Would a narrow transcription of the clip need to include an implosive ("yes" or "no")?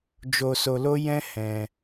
no